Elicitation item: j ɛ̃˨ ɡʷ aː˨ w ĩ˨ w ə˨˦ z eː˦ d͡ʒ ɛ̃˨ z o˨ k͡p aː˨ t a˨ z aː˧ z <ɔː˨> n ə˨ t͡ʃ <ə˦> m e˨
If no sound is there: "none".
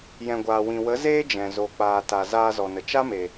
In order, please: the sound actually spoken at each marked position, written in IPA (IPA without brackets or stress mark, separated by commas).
ɔ˨, a˦